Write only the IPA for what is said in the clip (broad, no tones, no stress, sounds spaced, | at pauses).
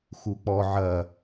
x u k͡p ɔ ʕ ɐ